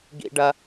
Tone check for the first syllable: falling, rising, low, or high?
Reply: high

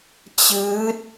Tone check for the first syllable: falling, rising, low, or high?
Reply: rising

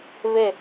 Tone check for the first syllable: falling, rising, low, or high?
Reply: falling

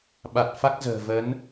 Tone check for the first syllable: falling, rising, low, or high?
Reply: low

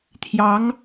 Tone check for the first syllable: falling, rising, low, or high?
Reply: rising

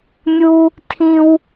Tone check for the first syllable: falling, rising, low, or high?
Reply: high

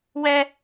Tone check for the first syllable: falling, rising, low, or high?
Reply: high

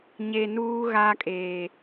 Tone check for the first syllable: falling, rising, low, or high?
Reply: low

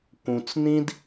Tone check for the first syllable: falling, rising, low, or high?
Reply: low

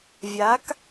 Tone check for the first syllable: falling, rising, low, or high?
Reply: rising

